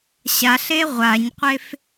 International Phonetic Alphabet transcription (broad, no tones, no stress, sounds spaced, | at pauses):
ɕ a ɬ e ʁʷ a ɲ qʷ e f